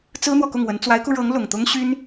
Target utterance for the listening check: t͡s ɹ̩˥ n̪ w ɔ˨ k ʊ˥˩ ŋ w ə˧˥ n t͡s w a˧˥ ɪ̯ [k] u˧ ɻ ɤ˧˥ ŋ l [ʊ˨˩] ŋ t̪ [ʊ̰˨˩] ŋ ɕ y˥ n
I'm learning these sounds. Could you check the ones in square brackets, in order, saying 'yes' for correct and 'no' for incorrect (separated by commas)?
yes, yes, no